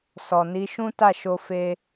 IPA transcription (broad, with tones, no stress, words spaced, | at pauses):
sɔ˨ni˨˦ ʃũ˦ta˦˨ʃo˧ fe˦